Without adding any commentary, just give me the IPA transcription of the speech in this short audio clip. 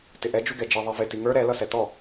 t ɪ ʔ ɛ d͡ʒ u ɡ ɛ d͡ʒ i ðˤ i v ɪ t i ŋ ə˞ ɾ ɛ l ʌ s ɛ t ɔ

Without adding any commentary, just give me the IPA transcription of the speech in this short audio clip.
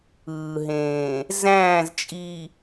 ɯː˨ ɦ ẽː˨ | z æ̃ː˦˨ z t͡ʃʼ i˨

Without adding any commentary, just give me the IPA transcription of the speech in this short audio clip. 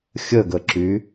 xʲ ə ɡ ə ǁ y

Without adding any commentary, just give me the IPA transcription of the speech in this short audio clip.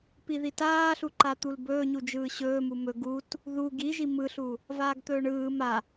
p i ð i t aː ɬ u ǃ a t̪ u l b ɵː ɲ u d͡ʒ ɯː ɕ ɵː m u m ɵ ɡ u t | ð u ɡ i ʒ i m ɯ ɬ u | v aː ɡ t̪ ɵː ɳ ɯː m a

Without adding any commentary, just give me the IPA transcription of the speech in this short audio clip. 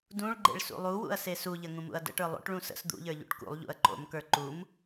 d ũ ɭ ɡ͡ǃ ḛ ɭ s ṵ lˠ u w ṵ ɐ̯ s e s u ʎ ə ŋ ũ m ṵ ɐ̯ d ə̰ ʈ ə˞ lˠ o̰ ʈ ɭ ũ s ə̰ s d̪ ṵ ʎ ə˞ ʎ ṵ ʈ k ṵ lˠ ʎ ṵ ɐ̯ ǃ o̰ m k ə˞ ǃ u m

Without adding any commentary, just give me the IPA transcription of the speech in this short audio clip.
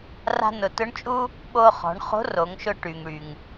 r a̤˧ n ʊ˩ t ʊ˧˥ ɳ t͡ʃʼ u˥ | ɓ o˧ χ ɔ̤˩˧ ɳ χ o̤˧˥ r o˩˧ ŋ ʃ ʊ˧ ʈ y˩ ŋ ɽ y˩ ŋ

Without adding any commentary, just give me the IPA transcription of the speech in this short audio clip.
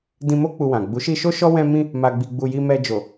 d ĩ˧ m o˦ k͡p u˧ w ã˨ ɡ͡b u˨˦ ʃ i˧ ʃ o˦ ʃ ɔ˦ w ɛ̃˧ m ĩ˧ | m a˧ ɡ͡b i˧ ɡ͡b u˧ j i˧ m ɛ˧ d͡ʒ o˨

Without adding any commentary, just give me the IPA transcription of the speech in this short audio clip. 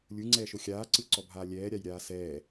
lʲ ɯ ŋ͡ǀ ɛː ʃ o xʲ aː ǀ ɯ ǀ ɔ bʱ aː lʲ ɛː ɾʲ a j ɾʲ aː s ɛː

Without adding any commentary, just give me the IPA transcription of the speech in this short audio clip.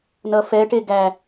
n ʌ f ɛ ʈ e ɡ æ

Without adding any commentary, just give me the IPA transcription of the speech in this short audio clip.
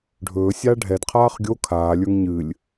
ɖʱ ɵː sʲ aː ɖʱ ɛ d qʰ aː χ ɡʲ o kʰ aː lʲ ə˞ ŋ ɲ ɨ lʲ

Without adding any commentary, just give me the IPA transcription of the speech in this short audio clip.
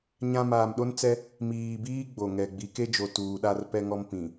ɲ ã˦ m aː˨ m ɗ o˦ n t͡s ɛ˦ | m iː˨ b iː˦ ɡ͡b o˨ ŋ ɛ˨ ɡ͡b i˨˦ k e˦ d͡ʒ o˨ t uː˨ ɗ a˦ r p ɛ˦ ŋ ɔ˦ m p ĩ˨

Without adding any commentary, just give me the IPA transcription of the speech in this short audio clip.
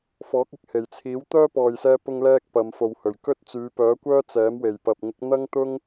f ɔː˨˥ k̚ ɪ˨ k̚ h e˨˩ j t͡sʰ iː˨˥ w t̪ œː˥ p ɔː˨ j s ɛː˧ p ʊ˧ ŋ l ɛː˥ k̚ p ɐ˨˧ m f o˨ w h ɵ˨˩ ɥ k ɵ˥ t̚ t͡s yː˨˧ p œː˨˥ kʷ œː˥ t͡s ɛː˨˥ m w e˨˩ j p ɐ˨ p̚ ŋ ɪ˨˥ k̚ n̪ ɐ˥ ŋ t̪ ʊ˥ ŋ

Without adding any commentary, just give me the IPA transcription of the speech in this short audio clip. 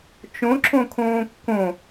t͡ʃ õ ǁ õ kʰ õː kː õ

